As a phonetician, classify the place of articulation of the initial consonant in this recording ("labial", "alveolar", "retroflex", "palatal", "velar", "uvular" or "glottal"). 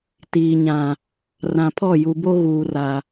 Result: alveolar